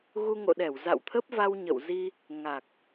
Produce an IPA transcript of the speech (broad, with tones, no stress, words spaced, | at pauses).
ɣu˧ŋo̰˧˨ɗɛ˧˩w za̰˧˨wt̪ʰə˦˥p̚va˧w ɲə̰˧˨w zi˧ | ŋa˨˩k̚